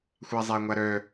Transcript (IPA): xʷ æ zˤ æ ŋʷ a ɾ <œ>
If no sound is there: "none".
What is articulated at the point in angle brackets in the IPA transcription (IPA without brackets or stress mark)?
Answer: œ